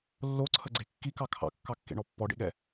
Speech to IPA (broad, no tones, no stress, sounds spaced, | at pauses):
lː o ǀʰ ə ɡ͡ǀ e kː i k ɑ kʰ ɑ̰ kː ɑ kː ḛ ɳ ɔ pː ɔ ɖ ḛ ɠ ɛ